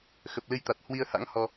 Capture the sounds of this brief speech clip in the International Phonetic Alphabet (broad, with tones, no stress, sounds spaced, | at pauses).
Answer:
x ə˨˩ p̚ l ɨ˧ j t̪ a˨˩ t̚ h w i˧ ə̯ h a̰˧˥ ŋ h ɔ˧